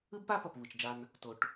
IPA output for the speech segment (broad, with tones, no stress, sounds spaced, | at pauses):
ɯ˦ b p a˦ p ʌ˨ p β ɯ˨ t͡ʃ d͡ʒ a˧ n | t o˧ ʈ